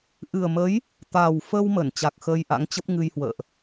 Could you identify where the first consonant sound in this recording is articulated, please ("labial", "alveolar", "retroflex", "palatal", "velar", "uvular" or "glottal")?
glottal